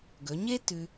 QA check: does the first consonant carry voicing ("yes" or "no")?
yes